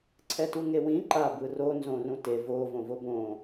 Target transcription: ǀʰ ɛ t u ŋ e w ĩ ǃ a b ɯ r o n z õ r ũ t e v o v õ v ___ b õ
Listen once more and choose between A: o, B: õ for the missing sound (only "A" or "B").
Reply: A